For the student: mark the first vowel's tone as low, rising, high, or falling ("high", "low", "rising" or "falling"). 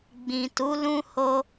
low